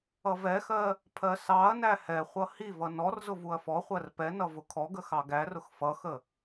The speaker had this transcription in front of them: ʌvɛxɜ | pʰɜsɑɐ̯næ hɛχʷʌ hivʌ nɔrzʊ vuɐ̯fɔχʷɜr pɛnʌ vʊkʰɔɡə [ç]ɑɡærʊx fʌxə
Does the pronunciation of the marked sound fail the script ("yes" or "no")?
yes